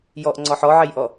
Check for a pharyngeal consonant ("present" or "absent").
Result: present